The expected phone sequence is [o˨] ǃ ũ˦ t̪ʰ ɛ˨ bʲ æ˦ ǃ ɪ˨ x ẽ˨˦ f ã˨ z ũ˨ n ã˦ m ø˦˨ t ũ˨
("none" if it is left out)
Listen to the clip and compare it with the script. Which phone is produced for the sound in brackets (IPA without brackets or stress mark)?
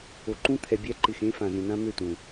o˨